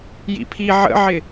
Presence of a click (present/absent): absent